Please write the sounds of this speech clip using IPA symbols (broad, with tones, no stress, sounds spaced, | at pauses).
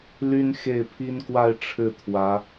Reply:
l y˥ n x e˥˩ ɪ̯ pʰ i˥ n k w a˥˧ ɪ̯ ʈ͡ʂʰ ɻ̩˥˩ t̪ʰ w ä˧˥